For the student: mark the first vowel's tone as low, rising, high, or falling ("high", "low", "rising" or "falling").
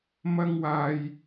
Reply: high